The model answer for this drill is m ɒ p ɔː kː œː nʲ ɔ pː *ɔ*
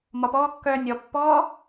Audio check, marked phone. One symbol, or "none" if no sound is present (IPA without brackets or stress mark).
ɔː